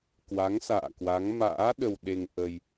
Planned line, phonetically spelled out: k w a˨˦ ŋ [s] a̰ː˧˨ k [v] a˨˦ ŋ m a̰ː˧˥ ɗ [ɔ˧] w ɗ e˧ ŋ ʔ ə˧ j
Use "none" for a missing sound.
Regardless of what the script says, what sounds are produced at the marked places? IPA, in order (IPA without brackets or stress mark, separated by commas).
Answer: s, w, ə˧